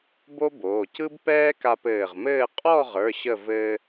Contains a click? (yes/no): no